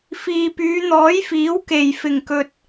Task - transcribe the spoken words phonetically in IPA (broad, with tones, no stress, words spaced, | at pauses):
fiː˨pyː˨˧n̪ɔː˨˥jfiː˨˥w ke˨˩jfɪ˨˩ŋkɵ˨t̚